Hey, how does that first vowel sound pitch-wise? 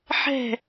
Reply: falling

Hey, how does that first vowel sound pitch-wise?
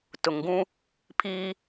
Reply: low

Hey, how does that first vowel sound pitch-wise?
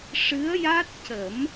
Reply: rising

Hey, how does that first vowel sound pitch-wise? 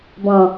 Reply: low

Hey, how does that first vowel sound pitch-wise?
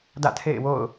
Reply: falling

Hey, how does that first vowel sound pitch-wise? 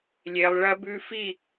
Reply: low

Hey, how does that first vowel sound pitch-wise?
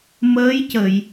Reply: rising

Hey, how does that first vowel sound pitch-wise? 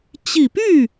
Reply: low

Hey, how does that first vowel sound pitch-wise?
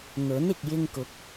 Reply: rising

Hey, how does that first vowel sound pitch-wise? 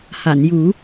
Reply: low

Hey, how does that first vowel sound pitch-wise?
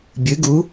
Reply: rising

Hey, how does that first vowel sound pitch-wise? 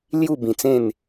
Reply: falling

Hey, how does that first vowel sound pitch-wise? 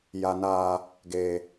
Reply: low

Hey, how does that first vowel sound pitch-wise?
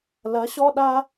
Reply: rising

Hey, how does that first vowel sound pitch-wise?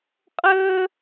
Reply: high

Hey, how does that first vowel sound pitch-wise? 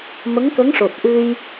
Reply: rising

